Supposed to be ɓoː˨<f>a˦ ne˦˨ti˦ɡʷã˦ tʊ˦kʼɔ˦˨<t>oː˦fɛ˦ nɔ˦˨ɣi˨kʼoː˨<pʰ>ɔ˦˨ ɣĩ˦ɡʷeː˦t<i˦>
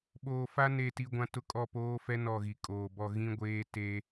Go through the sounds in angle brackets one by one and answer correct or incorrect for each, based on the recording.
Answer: correct, incorrect: p, incorrect: b, incorrect: e˦

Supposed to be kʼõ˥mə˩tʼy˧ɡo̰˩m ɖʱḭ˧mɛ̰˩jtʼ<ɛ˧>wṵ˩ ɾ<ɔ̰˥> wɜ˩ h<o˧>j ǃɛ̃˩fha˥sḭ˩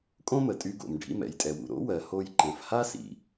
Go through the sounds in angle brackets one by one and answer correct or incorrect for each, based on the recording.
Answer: incorrect: ɛ˩, incorrect: o̰˥, correct

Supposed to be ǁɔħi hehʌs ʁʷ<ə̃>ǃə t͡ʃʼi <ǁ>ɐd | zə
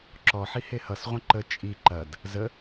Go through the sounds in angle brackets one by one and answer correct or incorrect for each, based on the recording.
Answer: correct, incorrect: ǃ

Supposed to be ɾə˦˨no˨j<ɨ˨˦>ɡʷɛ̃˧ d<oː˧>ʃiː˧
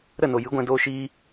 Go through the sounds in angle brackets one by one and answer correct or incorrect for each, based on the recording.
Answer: correct, correct

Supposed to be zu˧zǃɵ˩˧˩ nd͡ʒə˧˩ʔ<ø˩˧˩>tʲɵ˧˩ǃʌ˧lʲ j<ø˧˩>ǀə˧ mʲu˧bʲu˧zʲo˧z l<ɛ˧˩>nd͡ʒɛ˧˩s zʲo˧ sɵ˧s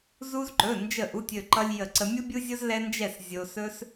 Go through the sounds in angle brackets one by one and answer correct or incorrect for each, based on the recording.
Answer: incorrect: u˩˧˩, incorrect: ə˧˩, incorrect: ɛ˧

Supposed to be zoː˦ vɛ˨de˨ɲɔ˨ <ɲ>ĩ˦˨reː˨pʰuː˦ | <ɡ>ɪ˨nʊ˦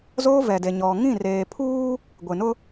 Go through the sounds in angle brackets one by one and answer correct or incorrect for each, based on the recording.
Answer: incorrect: ŋ, incorrect: ɡʷ

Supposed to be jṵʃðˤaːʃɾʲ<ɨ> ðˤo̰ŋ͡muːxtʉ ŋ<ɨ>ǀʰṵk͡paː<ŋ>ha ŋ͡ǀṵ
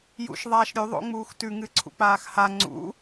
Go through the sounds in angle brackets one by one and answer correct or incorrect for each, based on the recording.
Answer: incorrect: ʉ, correct, incorrect: x

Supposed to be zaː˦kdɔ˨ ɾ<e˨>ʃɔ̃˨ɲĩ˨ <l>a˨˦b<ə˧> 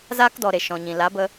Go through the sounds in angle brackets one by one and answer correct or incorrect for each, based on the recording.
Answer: correct, correct, correct

